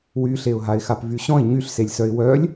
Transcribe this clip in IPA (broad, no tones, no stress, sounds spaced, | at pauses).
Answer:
w y ɬ e ʊ̯ ɦ a ɪ̯ x a p v y ɕ ɔ̃ ɪ̯ ɲ y ɬ s e lʲ s œ ɪ̯ w œ lʲ